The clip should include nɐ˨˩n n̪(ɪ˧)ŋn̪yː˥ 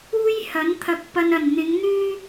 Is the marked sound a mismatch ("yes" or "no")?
yes